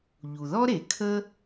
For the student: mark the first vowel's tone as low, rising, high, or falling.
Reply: low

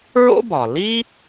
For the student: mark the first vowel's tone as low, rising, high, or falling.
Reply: high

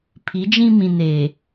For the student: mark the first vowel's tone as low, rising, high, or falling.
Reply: rising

